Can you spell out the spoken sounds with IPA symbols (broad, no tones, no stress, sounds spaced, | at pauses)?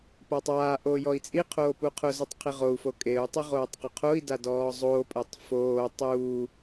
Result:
p a tˤ aː ʔ oː j ɔ i̯ t͡sʼ i qʰ oː p u qʰ ʊ z u tˤ qʰ i ʁ o u̯ f o kʼ e u̯ tˤ ʊ ʁ oː tˤ q ʊ qʰ o i̯ d a d ɔː zˤ oː pʼ ɛ tˤ f oː tˤ uː